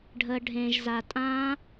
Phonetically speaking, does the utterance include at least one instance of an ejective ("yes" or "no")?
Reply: yes